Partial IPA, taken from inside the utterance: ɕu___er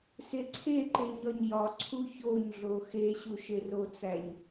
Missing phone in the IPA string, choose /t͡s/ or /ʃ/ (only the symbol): ʃ